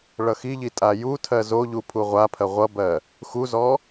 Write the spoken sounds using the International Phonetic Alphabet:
ɭ ʌ x i ʎ i tʼ a j u tʰ ɜ z o ʎ u pʰ u ʁʷ a pʰ ɜ ʁʷ ʌ b ɜ | x u z ɔ

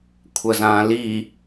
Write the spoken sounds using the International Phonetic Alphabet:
kʷʰ ɐ z ãː l i

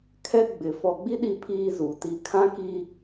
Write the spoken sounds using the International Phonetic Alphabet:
kʰ ɛ˦ ɡ͡b ɪ˨ f ɔ˨ ɡ͡b i˦ ɗ i˦ pʰ iː˦ z u˨ t i˦ kʰ ã˦ k i˦

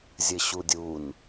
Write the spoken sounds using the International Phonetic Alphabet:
zʲ ɘ ɕ u dʲ u n

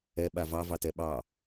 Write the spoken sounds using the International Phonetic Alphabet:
ɛ ɓ a v ɑ v ɑ t ɛ ɓ ɑ

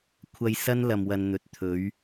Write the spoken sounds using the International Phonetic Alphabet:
kʷʰ ɐ˧ j s ɐ˥ n l ɐ˨ m w ɐ˨ n n̪ ɵ˨ t̚ t̪ʰ ɵ˨˥ ɥ

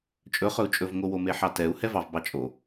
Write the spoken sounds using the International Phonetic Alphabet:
t͡ʃʼ ɵ χ ɵ u̯ t͡ʃʼ ɵ v ŋ o w o m e ħ ɑ t ɛ u̯ h ɛ v ɑ v b ɑ t͡ʃʼ o

